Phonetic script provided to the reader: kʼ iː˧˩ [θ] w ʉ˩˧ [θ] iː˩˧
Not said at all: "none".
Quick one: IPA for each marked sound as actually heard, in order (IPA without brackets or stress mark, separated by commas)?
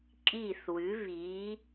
θ, β